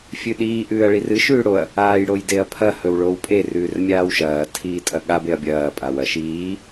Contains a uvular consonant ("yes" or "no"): no